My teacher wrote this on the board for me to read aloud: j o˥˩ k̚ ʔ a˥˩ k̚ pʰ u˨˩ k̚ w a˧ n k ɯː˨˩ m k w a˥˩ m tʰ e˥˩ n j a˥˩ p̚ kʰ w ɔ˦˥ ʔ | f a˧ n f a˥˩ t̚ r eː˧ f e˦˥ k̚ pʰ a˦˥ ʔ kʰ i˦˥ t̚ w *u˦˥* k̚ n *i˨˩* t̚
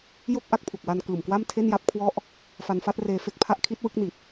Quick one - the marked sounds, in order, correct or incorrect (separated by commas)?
incorrect, correct